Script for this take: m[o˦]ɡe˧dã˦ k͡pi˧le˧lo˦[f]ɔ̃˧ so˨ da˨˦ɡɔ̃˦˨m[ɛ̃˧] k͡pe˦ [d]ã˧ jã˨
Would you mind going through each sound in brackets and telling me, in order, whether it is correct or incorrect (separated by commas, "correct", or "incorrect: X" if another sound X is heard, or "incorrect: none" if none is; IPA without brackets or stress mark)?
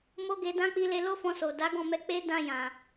correct, correct, incorrect: ɛ˧, correct